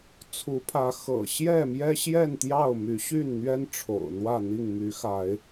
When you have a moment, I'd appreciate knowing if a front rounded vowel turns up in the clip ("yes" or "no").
yes